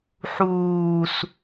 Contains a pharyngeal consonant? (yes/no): yes